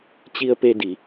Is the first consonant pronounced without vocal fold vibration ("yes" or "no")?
yes